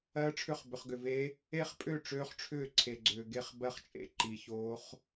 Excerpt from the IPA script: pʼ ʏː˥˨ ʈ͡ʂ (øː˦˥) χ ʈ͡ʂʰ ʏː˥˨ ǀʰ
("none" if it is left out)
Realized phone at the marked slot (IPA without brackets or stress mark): øː˦˥